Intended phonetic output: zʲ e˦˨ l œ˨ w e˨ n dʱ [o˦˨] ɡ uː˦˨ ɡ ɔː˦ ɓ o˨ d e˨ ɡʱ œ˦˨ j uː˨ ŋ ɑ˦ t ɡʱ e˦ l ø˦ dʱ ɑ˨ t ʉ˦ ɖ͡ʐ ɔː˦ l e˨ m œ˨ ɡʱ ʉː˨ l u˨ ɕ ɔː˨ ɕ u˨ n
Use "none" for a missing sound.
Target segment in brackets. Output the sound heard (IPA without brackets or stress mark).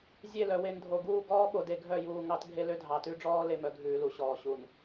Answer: o˨